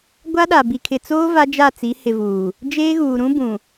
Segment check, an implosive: present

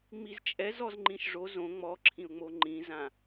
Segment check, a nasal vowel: present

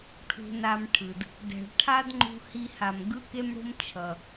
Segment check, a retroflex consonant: present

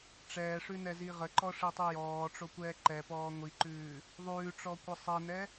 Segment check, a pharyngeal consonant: absent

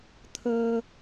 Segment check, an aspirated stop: present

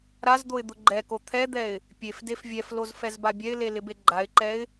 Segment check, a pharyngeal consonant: absent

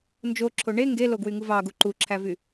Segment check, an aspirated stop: present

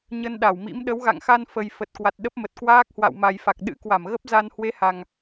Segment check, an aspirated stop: absent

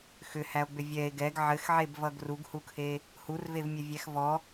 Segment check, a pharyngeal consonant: present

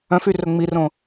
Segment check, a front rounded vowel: present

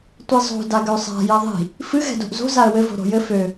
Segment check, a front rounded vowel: present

